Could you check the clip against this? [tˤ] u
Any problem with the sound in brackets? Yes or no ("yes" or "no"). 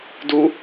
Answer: yes